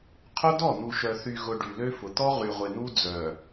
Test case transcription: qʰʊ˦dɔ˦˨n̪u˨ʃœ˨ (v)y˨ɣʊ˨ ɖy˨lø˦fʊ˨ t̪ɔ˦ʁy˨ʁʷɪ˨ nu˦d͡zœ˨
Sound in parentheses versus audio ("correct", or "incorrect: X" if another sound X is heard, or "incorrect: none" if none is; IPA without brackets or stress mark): incorrect: θ